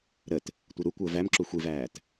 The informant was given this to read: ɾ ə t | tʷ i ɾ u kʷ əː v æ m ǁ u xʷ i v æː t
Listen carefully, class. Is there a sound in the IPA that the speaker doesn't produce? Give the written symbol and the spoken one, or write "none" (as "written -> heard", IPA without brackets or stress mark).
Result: none